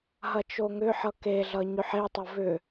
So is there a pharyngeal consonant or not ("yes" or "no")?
yes